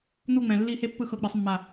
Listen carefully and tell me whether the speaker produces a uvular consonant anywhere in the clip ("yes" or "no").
no